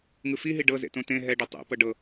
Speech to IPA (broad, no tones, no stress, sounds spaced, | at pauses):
ŋ ɯ f i ɦ i ɖ ɤ z ḛ t õ t ẽ ɦ ɛ ɖ o tˤ ḛ p ɤ ɖ ɤ